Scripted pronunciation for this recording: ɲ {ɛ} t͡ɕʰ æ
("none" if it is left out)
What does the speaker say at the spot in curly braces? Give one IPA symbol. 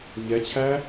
ɛ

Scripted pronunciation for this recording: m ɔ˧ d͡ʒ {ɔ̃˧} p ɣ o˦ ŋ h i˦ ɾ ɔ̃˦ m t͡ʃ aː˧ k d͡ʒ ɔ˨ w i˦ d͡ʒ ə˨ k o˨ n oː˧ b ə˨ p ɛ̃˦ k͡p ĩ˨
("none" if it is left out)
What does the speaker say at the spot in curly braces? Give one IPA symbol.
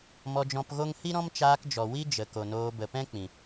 ɔ̃˧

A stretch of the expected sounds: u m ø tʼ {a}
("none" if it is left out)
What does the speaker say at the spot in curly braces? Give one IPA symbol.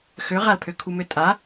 a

